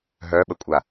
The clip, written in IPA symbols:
ɦœɓəkʷʼa

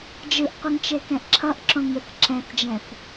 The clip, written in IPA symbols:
d͡ʒɯʔqʷɯŋt͡ʃekɛ̃ʔ ǁʰʌʔǁõŋɯθ ǁɛ̃θd͡ʒɛ̃θ

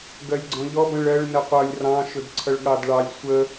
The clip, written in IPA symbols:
ɡɜlʲɡ͡ǀɔ̃ʎɔ bə̃ɭɜɭ nəqʷʌlʲ rɑ̃ ʃʊdǀʰʌɭɠɑdɭɑlʲ sʷə

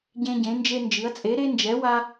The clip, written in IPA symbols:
ɟẽ˥ ɟẽ˨˥nd͡ʒe˥nd͡ʒɨ˨˥ɐ̯ t͡sʼe˨˥ɾe˥nd͡ʒɛ˨˥ wa˥

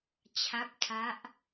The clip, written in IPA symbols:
t͡ɕʰa˦˥p̚tʰa˦˥ʔ

